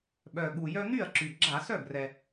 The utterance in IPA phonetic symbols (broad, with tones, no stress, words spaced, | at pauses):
ɓœ˨˩ɠu˨˩jœ˦ n̪y˥˩ɐ̯ǁy˨˩ ɡ͡ǁa˧˩˧sœ˥˩ brɛ˨˩